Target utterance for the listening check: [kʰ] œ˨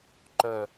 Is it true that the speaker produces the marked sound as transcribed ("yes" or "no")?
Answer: no